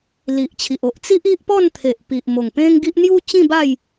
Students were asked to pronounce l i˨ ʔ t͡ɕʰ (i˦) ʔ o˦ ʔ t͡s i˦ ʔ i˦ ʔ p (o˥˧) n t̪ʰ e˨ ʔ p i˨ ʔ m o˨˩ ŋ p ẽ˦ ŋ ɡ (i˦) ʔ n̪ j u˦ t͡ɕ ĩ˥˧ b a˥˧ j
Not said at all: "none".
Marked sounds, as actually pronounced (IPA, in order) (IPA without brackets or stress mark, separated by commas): i˨, ɔ˥˧, i˦